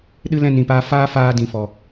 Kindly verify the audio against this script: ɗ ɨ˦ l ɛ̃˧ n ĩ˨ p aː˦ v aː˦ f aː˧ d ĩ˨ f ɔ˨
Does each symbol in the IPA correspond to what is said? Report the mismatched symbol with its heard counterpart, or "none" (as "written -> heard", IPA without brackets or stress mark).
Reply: v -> f